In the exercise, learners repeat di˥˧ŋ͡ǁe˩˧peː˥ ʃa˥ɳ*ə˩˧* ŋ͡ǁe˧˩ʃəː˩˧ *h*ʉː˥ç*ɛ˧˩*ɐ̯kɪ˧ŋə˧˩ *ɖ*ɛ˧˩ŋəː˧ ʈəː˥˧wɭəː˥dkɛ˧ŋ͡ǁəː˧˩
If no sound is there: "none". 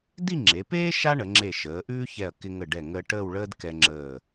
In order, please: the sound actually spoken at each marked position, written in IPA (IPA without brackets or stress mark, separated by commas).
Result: ə˩˧, ʔ, ɛ˧˩, ɖ